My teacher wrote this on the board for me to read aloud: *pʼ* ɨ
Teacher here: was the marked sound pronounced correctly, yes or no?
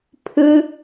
no